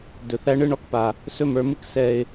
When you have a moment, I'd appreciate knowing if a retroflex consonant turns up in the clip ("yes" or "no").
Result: yes